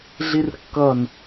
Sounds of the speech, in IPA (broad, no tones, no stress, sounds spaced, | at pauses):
ɮ i r kː ʌ n